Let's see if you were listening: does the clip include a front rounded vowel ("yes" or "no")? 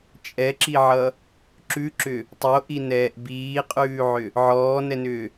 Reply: yes